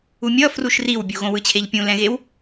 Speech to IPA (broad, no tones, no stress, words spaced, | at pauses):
umʲʌ fruʃriwbʲu ɣõwɯt͡ɕʰeʎpʲũ lɛ̃ɣew